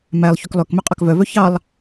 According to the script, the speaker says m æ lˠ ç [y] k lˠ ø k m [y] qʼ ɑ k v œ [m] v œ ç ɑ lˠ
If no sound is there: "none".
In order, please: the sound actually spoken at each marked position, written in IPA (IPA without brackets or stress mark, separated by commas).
y, ø, none